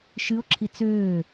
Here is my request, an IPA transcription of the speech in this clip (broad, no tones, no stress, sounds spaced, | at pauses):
ʃ ɨ o̯ ǁʰ i t͡s øː